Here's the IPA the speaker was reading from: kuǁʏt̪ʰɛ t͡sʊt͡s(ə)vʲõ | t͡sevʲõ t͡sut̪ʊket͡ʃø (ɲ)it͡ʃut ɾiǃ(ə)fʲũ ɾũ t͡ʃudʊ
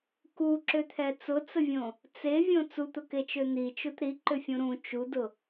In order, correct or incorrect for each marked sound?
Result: correct, incorrect: n̪, incorrect: ʏ

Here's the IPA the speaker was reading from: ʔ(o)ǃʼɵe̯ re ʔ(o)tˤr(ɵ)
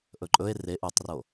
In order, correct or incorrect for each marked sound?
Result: incorrect: ɵ, incorrect: u, incorrect: o

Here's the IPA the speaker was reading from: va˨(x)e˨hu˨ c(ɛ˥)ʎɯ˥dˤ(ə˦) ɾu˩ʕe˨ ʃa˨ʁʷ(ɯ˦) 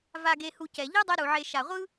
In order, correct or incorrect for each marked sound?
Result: incorrect: ɡ, incorrect: ɛ˩, incorrect: ɛ˦, incorrect: ɯ˥

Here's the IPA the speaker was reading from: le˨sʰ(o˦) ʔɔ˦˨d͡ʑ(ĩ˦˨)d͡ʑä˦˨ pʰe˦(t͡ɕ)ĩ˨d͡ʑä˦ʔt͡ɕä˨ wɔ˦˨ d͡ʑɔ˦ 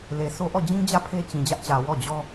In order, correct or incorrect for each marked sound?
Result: correct, incorrect: ĩ˦, correct

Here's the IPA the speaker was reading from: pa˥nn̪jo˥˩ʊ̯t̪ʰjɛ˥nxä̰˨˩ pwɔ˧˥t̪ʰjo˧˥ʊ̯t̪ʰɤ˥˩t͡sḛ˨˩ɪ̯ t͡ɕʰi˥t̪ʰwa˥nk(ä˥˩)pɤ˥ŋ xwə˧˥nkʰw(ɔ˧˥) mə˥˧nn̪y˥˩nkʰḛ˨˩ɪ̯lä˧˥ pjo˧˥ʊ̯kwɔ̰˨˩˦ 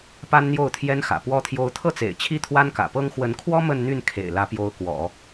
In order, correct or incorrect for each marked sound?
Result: incorrect: ä̰˨˩, incorrect: ɔ˥

